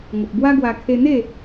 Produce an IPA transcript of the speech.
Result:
ŋ ə˨ p̚ b w a˦ ɡ w a˧ kʰ e˧ n̪ e˥˧

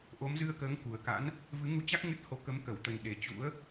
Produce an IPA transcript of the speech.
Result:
ʔ o˨˦ m z ɨ˧ ə̯ k əː˨˦ ŋ k u˨˩ ə̯ k a̰˧˥ n | v ɨ˨˦ ŋ u˧ t͡ɕ a˦˥ k̚ ŋ ɨ˦˥ t̚ h o˧ k ə˨˦ m k ə˧˩ w t̪ ə˨˩ n ɗ e˨˩ t͡ɕ ṵ˧˥ ə̯

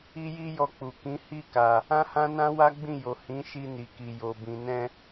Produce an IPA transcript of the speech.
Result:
i˦ j i˦ j ɔ˧ k͡p u˨ k ĩ˨˦ h i˦˨ k a˨ | ã˦ h ã˦ n ã˦ w a˦ ɡ͡b ĩ˦˨ j o˨ h ĩ˨˦ ʃ i˧ n i˨ k i˨ j o˨ b ĩ˨ n ɛ̃˧

